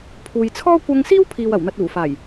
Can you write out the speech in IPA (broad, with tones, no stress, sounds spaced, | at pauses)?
pʰ uː˨ j t͡sʰ ɔː˥ kʷ ɐ˧ ŋ s iː˥ w pʰ iː˨ w ɐ˨˩ w n̪ ɐ˨ t̚ uː˨˩ f aː˨˩ j